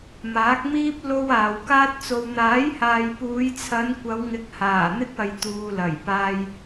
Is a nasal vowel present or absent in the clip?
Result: absent